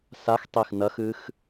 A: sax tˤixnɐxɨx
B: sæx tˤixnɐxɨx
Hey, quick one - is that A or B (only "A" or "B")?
A